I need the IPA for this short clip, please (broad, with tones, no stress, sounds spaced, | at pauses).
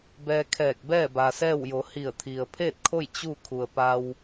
b ɛː˧ kʰ ɛː˧˩ k̚ b ɛː˥˨ b a˩ s ɛː˥˨ w j o˩˧ h i˧˩ ə̯ t̪ʰ i˩ ə̯ pʰ eː˥˨ t̚ kʰ o˥˨ j t͡ɕ u˥˨ kʰ u˩ ə̯ p a˧ w